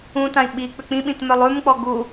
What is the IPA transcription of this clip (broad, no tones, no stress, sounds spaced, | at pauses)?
ũ t ã i̯ ɓ i k͡p ʏ k͡p ĩ ɓ ĩ t m œ lˠ ʉ m k͡p ɔ ɡ u